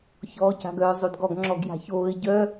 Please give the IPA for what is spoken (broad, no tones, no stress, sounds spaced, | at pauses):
ç ɔː c a̤ ɡ œ ʊ̯ zˤ o d ɡ ɔ ɡ ŋ͡ǁ ɔ ɡ j a̤ ç oː ɪ̯ ɟ œ